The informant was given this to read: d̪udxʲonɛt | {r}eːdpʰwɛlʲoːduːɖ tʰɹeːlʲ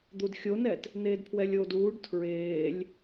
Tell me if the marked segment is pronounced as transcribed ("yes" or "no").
no